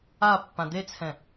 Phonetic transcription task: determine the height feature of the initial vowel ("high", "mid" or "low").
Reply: low